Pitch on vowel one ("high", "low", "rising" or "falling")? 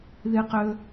high